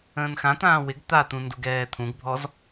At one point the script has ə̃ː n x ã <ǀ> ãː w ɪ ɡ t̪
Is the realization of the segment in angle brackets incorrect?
yes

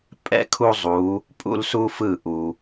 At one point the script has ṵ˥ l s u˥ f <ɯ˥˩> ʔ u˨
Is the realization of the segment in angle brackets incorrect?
no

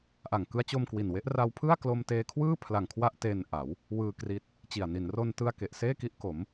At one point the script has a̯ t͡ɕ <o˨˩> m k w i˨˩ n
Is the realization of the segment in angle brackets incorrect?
yes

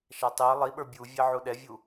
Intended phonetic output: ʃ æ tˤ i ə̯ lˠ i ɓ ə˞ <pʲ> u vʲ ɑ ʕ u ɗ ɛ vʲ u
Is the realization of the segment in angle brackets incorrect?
yes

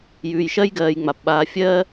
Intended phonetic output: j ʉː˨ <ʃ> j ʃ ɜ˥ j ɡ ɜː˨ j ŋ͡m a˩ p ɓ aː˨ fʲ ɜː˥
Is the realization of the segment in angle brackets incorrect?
yes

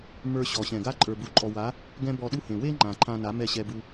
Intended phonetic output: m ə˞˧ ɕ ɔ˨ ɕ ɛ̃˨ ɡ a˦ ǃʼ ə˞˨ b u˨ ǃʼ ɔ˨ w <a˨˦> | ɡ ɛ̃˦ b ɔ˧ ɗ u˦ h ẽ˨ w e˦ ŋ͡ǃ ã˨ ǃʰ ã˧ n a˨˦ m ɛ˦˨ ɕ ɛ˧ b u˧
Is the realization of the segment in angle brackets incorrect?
no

